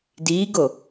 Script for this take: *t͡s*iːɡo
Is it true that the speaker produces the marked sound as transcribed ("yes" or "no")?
no